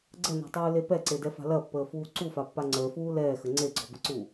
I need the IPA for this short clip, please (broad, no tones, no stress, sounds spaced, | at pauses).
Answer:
ɡ͡ǀ ə n ɔ̤ tˤ uː l e p ɛ ǀ e d ɛ f a̤ l ɐ pː əː f uː ǀ u f a pː a ŋ͡ǀ ə˞ f uː l ɛː x ə ŋ͡ǀ e ɡ͡ǀ ɔ b ə̤ ǀ uː